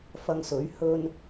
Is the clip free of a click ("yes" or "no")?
yes